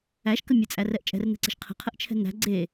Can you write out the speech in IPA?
æ ʃ k ə mʲ ə t͡sʼ æ r ɛ ʔ t͡ʃʼ ɛ̤ r n ɛ̤ ǀ e̤ ʃ qʰ ə̤ qʰ ə ʔ t͡ʃʰ ɛ̤ n æ̤ ɡ͡ǀ e

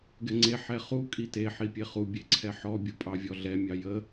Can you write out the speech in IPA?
ɡ ɛ ŋ͡ǀ e ħ ɛ χ u kʼ i t e ħ i pʲ e χ u bʲ e ǀʰ ɛ ħ ɔ bʲ u pʼ ɑ vʲ ɔ ɮ ɛ mʲ ɑ j ə

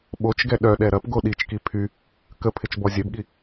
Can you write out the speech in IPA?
ɓ o t͡ʃ ɡ ɛ ɗ œ ɗ ɛ ɾ ɐ p ɡ o ɗ i t͡ʃ k i pʰ y | k ə pʰ ɪ t͡ʃ b ɔ zʲ œ b ɠ i

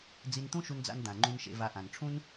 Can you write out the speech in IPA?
d͡z i˧ n t̪ ũ˥ ʃ u˧ n d͡z a̰˧ n d̪ ã˩ ŋ͡ǃ ũ˧ n ʃ ḛ˧ v a˧ ʔ ã˩ n ʈ͡ʂʰ ũ˥ n

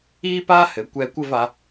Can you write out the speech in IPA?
iː˥ p aː˥ h ɘ˩˧ kʷ ɛː˧ kʷ ɘ˥˧ v a˩˧

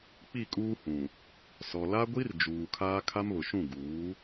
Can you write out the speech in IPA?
k͡p i˦˨ kʼ uː˦ h ũ˨ | s ɔ˨ l a˦ ɡʷ i˦ r d͡ʒ uː˨ kʰ aː˦ kʰ a˦ m β ʊ˨ ʃ ũ˦˨ ɡ uː˨˦

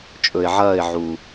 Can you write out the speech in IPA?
t͡ʃʼ ɵ˨ ɪ̯ ʕ ɐː˦˨ ɪ̯ ʕ u˨

